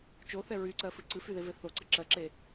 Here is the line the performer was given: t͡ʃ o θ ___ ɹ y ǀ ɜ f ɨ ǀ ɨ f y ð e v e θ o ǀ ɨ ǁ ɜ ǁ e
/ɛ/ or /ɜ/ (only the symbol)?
ɛ